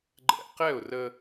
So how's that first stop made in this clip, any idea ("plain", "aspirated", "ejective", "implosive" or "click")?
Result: click